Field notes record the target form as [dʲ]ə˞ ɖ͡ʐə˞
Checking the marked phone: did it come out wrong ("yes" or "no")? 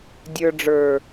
no